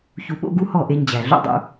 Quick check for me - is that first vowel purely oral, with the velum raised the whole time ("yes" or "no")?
yes